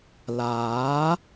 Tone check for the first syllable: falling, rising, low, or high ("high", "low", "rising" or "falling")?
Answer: rising